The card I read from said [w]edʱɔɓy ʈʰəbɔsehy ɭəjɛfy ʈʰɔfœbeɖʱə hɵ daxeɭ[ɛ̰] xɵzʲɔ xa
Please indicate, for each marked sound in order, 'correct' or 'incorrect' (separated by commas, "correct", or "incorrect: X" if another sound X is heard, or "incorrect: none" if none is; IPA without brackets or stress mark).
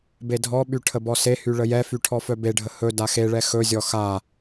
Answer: incorrect: b, incorrect: ɛ